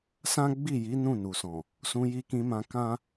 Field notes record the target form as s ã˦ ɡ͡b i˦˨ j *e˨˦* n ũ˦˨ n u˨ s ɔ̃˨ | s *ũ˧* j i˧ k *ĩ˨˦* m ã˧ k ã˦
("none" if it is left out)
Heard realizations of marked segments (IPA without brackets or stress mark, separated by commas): i˨˦, ũ˧, ĩ˧